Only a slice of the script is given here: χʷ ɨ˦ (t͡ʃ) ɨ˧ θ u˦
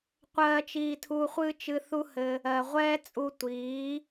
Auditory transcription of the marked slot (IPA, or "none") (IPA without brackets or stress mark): t͡ʃ